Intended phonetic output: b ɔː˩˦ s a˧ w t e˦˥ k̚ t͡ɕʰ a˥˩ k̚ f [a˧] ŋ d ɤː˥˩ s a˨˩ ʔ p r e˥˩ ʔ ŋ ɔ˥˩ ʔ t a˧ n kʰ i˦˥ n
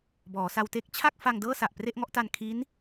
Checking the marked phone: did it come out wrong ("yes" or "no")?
no